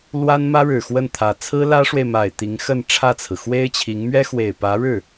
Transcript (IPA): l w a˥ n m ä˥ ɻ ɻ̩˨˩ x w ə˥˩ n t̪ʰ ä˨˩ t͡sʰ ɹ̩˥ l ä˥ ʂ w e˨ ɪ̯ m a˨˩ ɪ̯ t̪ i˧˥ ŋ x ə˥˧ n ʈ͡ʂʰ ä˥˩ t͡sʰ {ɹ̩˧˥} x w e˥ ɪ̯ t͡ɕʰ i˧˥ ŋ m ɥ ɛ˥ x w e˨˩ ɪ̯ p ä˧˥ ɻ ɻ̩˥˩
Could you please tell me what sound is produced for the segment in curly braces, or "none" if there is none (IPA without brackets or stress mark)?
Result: ɹ̩˩